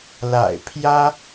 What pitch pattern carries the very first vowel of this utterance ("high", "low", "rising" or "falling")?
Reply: low